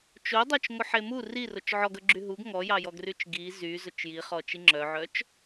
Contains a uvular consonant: yes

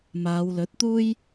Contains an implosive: no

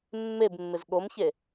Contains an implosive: yes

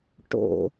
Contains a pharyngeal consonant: no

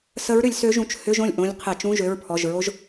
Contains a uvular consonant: yes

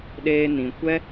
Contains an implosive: yes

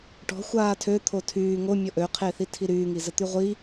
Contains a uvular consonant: yes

